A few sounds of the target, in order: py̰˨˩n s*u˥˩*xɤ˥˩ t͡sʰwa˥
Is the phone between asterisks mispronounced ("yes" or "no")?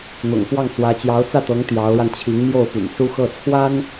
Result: yes